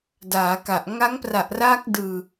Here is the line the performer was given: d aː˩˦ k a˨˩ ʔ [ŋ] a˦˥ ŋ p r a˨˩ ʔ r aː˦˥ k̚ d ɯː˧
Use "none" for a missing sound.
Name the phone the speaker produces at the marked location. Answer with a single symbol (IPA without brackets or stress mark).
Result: ŋ